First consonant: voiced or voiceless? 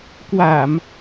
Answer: voiceless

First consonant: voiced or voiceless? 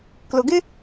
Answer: voiceless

